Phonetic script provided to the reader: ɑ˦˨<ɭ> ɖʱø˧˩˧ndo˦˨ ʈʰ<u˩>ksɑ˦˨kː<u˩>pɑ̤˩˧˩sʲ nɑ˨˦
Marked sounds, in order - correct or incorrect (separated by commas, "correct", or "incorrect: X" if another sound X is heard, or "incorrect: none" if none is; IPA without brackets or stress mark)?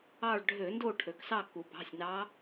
correct, incorrect: ø˩, correct